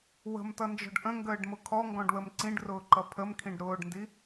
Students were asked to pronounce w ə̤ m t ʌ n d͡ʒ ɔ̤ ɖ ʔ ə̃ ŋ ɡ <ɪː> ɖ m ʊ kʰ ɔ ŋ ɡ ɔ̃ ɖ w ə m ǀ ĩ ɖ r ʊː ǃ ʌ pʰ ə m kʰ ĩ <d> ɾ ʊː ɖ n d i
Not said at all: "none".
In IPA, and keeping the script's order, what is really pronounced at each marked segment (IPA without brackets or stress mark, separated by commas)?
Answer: əː, ɖ